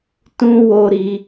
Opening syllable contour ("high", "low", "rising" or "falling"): high